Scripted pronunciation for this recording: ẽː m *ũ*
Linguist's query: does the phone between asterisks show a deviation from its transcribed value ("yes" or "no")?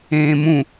no